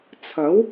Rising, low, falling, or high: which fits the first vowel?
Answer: rising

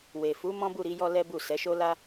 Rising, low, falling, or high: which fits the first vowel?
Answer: low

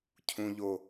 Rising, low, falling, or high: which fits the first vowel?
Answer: high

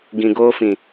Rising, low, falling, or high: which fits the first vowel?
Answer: low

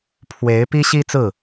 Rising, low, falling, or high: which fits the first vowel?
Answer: rising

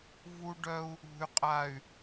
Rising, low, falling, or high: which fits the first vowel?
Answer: high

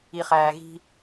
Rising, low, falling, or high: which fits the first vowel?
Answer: low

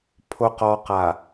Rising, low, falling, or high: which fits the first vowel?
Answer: low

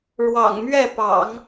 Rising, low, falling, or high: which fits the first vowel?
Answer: low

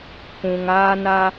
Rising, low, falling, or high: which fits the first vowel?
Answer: low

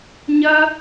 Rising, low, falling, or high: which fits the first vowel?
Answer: high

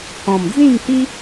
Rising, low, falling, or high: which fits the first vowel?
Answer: low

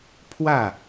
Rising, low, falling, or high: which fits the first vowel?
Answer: falling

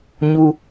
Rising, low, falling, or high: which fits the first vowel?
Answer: high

